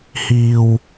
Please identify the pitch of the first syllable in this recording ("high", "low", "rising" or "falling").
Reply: low